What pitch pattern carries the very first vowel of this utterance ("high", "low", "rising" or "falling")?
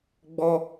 high